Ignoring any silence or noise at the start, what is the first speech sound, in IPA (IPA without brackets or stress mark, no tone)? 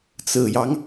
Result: t͡s